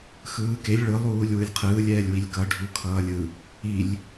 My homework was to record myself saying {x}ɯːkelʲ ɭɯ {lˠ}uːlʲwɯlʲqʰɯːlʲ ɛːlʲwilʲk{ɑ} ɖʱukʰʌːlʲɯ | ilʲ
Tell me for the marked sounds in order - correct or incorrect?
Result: correct, correct, incorrect: ʌ

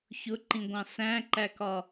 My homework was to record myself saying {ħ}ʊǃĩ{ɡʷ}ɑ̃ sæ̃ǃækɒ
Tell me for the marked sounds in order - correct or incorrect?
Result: incorrect: ç, correct

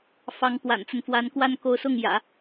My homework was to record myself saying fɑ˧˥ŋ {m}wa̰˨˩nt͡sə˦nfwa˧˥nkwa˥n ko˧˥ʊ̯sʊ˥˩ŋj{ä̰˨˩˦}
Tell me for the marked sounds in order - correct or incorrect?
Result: incorrect: p, correct

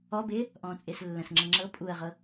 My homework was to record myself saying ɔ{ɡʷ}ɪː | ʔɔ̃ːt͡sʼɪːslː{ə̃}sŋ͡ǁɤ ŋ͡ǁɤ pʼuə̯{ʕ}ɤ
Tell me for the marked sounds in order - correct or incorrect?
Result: incorrect: b, correct, incorrect: ʁ

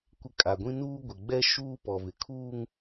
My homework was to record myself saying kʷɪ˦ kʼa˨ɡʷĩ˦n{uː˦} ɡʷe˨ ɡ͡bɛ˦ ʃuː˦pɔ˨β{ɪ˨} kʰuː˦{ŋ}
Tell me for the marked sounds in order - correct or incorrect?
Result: correct, correct, correct

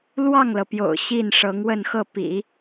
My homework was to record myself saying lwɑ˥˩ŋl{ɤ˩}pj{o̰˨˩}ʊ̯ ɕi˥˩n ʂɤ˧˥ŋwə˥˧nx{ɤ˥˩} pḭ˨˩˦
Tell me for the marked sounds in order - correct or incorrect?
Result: correct, correct, correct

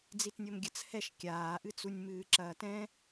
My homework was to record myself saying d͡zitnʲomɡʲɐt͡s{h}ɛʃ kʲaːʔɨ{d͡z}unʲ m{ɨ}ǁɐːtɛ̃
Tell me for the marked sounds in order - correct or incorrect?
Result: correct, incorrect: t͡s, incorrect: ɨː

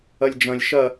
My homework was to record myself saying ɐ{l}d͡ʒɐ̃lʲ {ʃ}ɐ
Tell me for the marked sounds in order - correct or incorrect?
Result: incorrect: lʲ, correct

